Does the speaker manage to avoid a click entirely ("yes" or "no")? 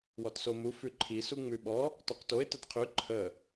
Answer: no